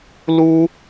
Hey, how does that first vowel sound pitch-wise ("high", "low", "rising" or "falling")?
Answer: high